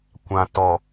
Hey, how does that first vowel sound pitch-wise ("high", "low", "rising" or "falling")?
low